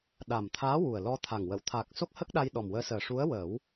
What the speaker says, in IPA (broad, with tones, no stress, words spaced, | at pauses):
ɗa˨˩mt̪ʰaː˧˥ wu˨˩ə̯lɔ˧t̪ʰa˨˩ŋwə˨˩˨w t̪ʰa˨˩k̚ so˦˥k̚hə˦˥k̚ɗa˧j ɗɔ˨˩mwəː˧˥səː˨˩ ʂu˧˥ə̯wəː˨˩˦w